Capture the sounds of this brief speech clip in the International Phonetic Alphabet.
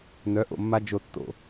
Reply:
n œ˨˥ ʔ o̰˦˨ mː a˦ d͡ʒ o˦ tː o̰˦˨

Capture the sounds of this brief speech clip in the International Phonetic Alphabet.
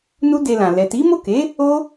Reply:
n u˦ d e˧ l ã˨ l ɛ˨ t i˨˦ m o˦˨ k e˨˦ | o˦

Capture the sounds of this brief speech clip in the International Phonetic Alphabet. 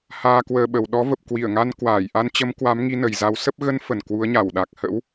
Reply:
h aː˧ k w əː˧ ɓ ə˨˩ w ɗ ɔ˨˦ v ə˨˩ p̚ k w i˧˩ ə̯ ŋ a˧ n k w aː˧˩ j ʔ a˧ n t͡ɕ ə˨˦ m k w a˨˦ m ŋ i˨˦ n ə˨˩ j z a˨˦ w s ə˦˥ p̚ ɣ ə˨˦ n f ə˨˩ n k w u˨˦ ə̯ ɲ a˧˩ w ɗ a˨˩ k̚ h ə̰˧˥ w

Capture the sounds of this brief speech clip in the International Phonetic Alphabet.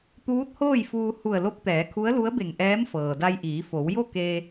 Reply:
t̪ uː˧˥ t̚ h oː˥˨ j f uː˧ h u˧˩ ə̯ l o˧˥ p̚ t̪ ɛː˩˧ kʰ u˧˥ ə̯ l u˧˥ ə̯ b e˧˩ ŋ ʔ ɛː˧˥ m f ɤː˩ d a˧ j ʔ iː˩˧ f o˩˧ w j o˥˨ k e˧

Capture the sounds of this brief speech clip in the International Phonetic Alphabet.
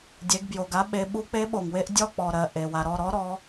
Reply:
dʲ e˩˧ ɡ b j o˩ ɡ a˨˥ ɓ e˩˧ ɓ u˨˥ k͡p e˨˥ ɓ o˩ ŋ w e˦ ʔ dʲ ɔ˦˨ k͡p ɔ˩ ɾ ɜ˩ ʔ e˩ w a˩ ɾ ɔ˦˨ ɾ ɔ˨˥ ɾ ɔ˩˧

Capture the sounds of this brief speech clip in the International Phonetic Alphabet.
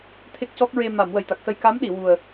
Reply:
t̪ʰ e˦˥ k̚ c ɔ˦˥ k̚ ɹ e˧ m a˨˩˨ m w ə˨˩ j t̪ a˨˩ k̚ s ə˧ j k a˧˥ m ɗ i˨˩˨ w u˨˩ ə̯

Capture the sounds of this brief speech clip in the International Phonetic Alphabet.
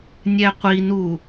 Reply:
nʲ ɛ qʷ i n u

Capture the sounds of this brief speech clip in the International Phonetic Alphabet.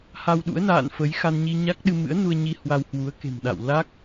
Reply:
h a˧ w ɗ ṵ˧˥ ə̯ n a̰ː˧˨ n f ə˨˦ j x a˧ n ɲ i˧ ɲ a˦˥ k̚ ɗ ɨ˧ m ɨ̰˧˥ ə̯ n u˧ ə̯ ɲ i˧ h w a˧ w h w u˨˦ ə̯ k e̤˨˩ m ɗ a̰˧˨ w l a˦˥ k̚

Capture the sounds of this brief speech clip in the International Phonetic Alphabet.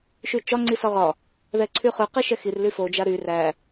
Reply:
ʃ y t͡ʃ ɒ ŋ͡ǀ i s ɒ ʁ ɒ | ð ɛ ǀʰ y χ ʉ q i ʃ ɛ x i r l y f o d͡ʒ a ɾ y r æ

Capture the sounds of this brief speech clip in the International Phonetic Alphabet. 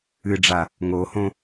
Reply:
ɨ ɖ͡ʐ a | ŋ o h õ

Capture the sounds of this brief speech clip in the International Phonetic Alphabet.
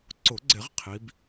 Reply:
ǀ ʊ˨˩˦ ɡ͡ǀ ɪ˨˩˦ ʁ qʰ i˨˦ b

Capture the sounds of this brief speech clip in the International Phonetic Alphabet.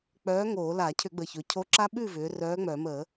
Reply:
k͡p œː˨˥ ŋ oː˧˩˧ l a˧˩˧ cʰ ʏ˧˩˧ ɡ͡b ə˨˩ ç ɵ˩˧ cʰ o˨˥ ǁ a˦ ɓ ʉ˥˩ v ʏː˩˧ r œː˨˥ ŋ͡m œ˧˩˧ m ə˧˩˧

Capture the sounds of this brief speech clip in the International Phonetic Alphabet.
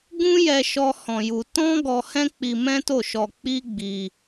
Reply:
ɡ ũ˦ j ɛ˧ ʃ ɔ˦ h ɔ̃˧ j u˧ t ɔ̃˦ ɡ ɔ˧ h ɛ̃˦ k͡p i˧ m ɛ̃˦ t o˦˨ ʃ ɔ˧ k͡p i˦ ɡ͡b i˧

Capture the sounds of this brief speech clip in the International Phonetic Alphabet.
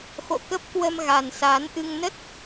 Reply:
x o̰˧˨ k ə˦˥ p̚ k w ə˧ m ɣ a˨˩ n s aː˨˦ n ʔ ɨ˧ ŋ n ə˦˥ t̚

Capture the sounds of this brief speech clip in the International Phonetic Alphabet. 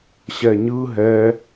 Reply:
ɕ ɛ ɲ ɯ ɦ ɛ

